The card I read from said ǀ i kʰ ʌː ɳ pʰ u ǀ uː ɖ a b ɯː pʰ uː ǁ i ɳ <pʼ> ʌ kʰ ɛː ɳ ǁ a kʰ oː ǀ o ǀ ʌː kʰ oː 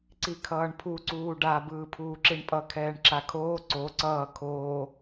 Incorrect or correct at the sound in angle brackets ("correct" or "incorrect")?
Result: correct